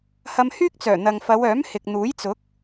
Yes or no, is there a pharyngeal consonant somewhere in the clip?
no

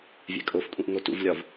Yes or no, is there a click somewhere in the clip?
no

